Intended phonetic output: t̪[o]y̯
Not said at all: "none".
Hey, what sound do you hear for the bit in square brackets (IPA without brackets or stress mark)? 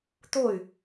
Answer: o